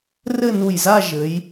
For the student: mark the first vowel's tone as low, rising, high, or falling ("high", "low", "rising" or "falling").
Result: falling